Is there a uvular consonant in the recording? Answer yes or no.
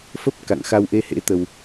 no